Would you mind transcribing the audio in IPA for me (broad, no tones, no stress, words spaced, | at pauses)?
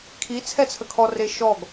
kʰi t͡sʰɛt͡sʰəkʰɔ reʃɔɡ